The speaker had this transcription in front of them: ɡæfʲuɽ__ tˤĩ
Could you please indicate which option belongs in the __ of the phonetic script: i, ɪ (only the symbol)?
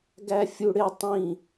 ɪ